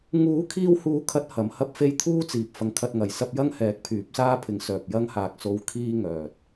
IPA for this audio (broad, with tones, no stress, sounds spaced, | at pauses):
ŋ uː˨˥ kʰ iː˧ w h uː˨˥ kʰ ɐ˨˥ t̚ h ɐ˨˧ m h ɐ˥ p̚ f e˥ j t̪ʰ uː˥ t͡s iː˨ p̚ f ɐ˧ ŋ kʰ ɐ˧ t̚ ŋ ɐ˨ j s ɐ˥ p̚ j ɐ˥ ŋ h ɛː˨˥ k̚ pʰ yː˨˥ p̚ s aː˥ pʰ ɪ˨˥ ŋ s œː˨ p̚ j ɐ˧ ŋ h aː˨ k̚ s o˧ w kʰ iː˧ ŋ œː˨ t̚